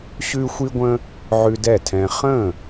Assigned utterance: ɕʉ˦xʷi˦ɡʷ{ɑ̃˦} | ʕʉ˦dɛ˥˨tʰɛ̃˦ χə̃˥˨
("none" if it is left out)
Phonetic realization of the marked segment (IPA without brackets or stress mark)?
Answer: ə̃˦